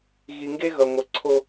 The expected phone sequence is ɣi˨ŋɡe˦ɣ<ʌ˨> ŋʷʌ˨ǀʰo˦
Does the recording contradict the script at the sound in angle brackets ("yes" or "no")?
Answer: no